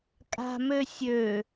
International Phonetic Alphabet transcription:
kʼ a̤ m ø sʲ ø

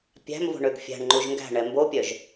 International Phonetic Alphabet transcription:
pʲ æ̤ m v o̤ ɳ ø ɡ fʲ æ̤ ɳ ŋ͡ǃ u ʒ ŋ ɡ æ̤ ɳ ɛ m b o pʲ œ ʒ

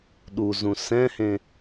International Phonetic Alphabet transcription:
ɗ u z ũ s ɛ̃ h ẽ

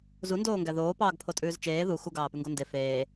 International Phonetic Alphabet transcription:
z u n d oː ŋ ɡ æ ð oː p ɑː ɡ pʰ o tʼ ʉː z t͡ʃ eː ð u x u ɡ ɑː p ʉ ŋ ɡ o n d e f eː

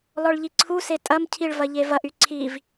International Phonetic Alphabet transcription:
l ɔ ɭ ʎ i ǀʰ u s e tʼ ɐ m cʰ i ɭ v ɐ ʎ e v ɐ ʔ y ǀʰ i v

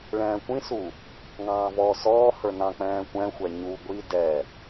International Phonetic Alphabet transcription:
ɭ ɛ̃ː kʷ ĩ s u | ŋ ɑ̃ː v ɔː s ɔː h ə˞ n ɑ̃ k͡p ɛ̃ː kʷ ɛ̃ xʷ ɛ ɲ u ɡʷ i d ɛ

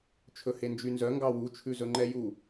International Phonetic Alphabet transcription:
t͡ʃʰ ɵ h e n d͡ʒ y n z œ ŋ ɡ ɑ w u t͡ʃʰ ʉ z ɵ ŋ͡ǃ ɛ j u

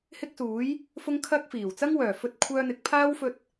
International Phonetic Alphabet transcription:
h ɪ˥ k̚ s uː˨˥ j | f ʊ˥ ŋ kʰ ɐ˥ k̚ f iː˨˩ w t͡s ɐ˥ ŋ w œː˨˩ f ɵ˧ t̚ kʷʰ œː˧ n̪ ɪ˨˥ k̚ pʰ aː˥ w f ɵ˧ t̚

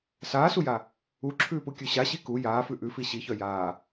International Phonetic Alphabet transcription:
s aː s u j a | u ǁʰ ʉː p u kʲ ʉ ɕ a ɕ i k u j aː f ʉ ʔ ʉ f i ɕ i ç œ j aː

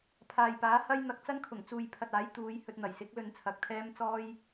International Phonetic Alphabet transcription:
pʰ aː˨ j p aː˨˥ h ɐ˥ j n̪ ɐ˨ k̚ t͡s ɐ˥ n kʰ ʊ˨˩ ŋ t͡s uː˨ j pʰ ɐ˨ t̚ aː˨˥ j t̪ uː˨˧ j h ɵ˧ t̚ n̪ ɐ˨˩ j s ɪ˨˥ k̚ l ɵ˧ n t͡sʰ ɐ˨ k̚ t̪ʰ ɛː˥ m t͡s ɔː˥ j

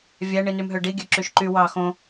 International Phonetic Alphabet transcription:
vʲ æ ɳ i n y m ɦ ø ɖ i ɡʲ ø ǁ y ʃ ǃ y w ɑ x õ

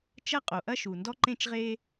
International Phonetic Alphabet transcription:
t͡ʃ ɐ˦ qʼ o˩ ʔ ɐ˦ ʃ u˩ n d ɔ˦ ǃ ẽ˦ t͡ʃ ʁ e˦

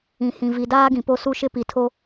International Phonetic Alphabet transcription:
ĩ˨ h ĩ˨ v i˨ d aː˦ ɡ ĩ˨ p o˦ s u˦ ʃ ɪ˦ p i˨ tʰ o˦

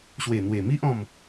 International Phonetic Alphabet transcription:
ɕ w e˨˩ n̪ w e˨˩ m i˦ ʔ ɔ̃˥˧ m

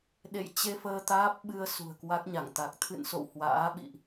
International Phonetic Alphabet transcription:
ɗ ḛ˧˨ j t͡ɕ e˧ f əː˧ t̪ aː˦˥ p̚ ɓ ɨ˧ ə̯ s ṳ˨˩ ə̯ k w a˦˥ k̚ ɲ a˧˩ ŋ t̪ a˨˩ k̚ t̪ʰ ɨ̰˧˨ n s o̰˧˨ w h w a̰ː˧˥ ɓ ḭ˧˨ ʔ

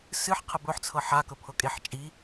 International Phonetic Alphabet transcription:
s ɨ ħ qʰ ə b ɵ ħ t͡sʰ ɤ ħ a k ɵ pʰ ɤ kʼ e ħ t͡ʃʼ i

